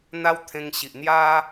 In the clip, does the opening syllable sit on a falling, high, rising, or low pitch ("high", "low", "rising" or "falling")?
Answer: high